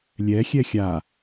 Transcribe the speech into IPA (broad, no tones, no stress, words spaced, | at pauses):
lʲɛ xʲɛxʲa